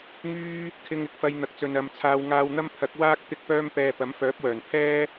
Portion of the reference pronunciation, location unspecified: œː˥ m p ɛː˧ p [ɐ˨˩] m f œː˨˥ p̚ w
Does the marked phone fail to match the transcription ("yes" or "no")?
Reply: yes